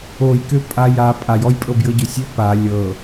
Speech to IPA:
o j k ø pʼ a j a pʼ a j ɔ j pʼ ɤ b j ɤ ɟ ø sʲ ø p a lʲ ɤ

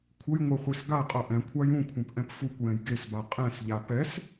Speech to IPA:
kʷʰ ə j ŋʷ ɛ χʷ e s ɡ a qʼ ʌ ʔ ɛ̃ kʷʰ a j ũ kʷʰ ã p ʔ ɛ̃ p f u kʷ j ɛ̃ j ɡ e s b a qʼ ɛ̃ s ʎ a p ɛ s

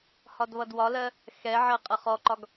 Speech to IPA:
h ɒ d β ʌ d w ɒ l ɜ | x ɛ ʕ ɜ qʼ ʌ χ ɔ ǃ ɒ ɡ

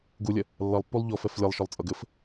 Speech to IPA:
ɡ u lʲ ɐ | lː ʌ lˠ pː u lˠ ʎ ɔ f ɛ f lʲ ɐ lˠ ʃ ɔ lˠ t͡sʼ ʌ ɡ ɘ f

